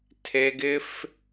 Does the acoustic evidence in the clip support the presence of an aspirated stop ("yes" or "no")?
yes